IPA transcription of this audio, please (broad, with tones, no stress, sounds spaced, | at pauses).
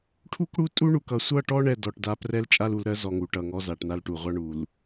ʈʰ u˦ k ɽ u˦ tʼ u˦ ɳ u˨ k ʌ˨ sʷ ʌ˦˨ ʈ ɔ˦ ɳ ɛ˨ d ɔ˨ ʈ d a˦ p r ɛ˦ l t͡ʃʼ a˦ l u˨ l ɾ ɜ˦ z ɔ˨ ŋ u˨ ʈ ʌ˨ ŋ ɔ˦ z a˨ ʈ n a˦ l ʈ u˨ ʁʷ a˦ ɳ u˨ l